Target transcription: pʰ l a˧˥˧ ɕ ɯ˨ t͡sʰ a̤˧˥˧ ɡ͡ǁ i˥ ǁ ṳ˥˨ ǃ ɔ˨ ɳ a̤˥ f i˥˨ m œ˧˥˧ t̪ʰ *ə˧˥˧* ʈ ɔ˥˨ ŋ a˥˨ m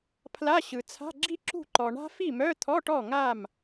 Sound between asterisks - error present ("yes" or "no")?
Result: yes